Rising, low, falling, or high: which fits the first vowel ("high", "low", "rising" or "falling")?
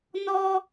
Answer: high